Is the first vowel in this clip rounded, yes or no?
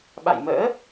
no